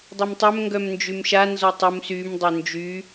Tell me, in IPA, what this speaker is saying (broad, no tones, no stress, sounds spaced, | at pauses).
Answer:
dˤ ɛ m tˤ œ m ŋ ɡ œ m n d͡ʒ y m ʃ a n z ɔ tˤ u m s y m dˤ ø n d͡ʒ y